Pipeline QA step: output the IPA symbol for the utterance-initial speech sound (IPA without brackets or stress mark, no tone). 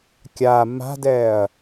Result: kʲ